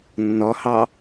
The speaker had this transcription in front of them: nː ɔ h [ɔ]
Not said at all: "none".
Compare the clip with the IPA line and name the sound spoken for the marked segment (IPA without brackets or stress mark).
ɑ